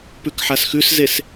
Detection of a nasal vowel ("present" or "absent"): absent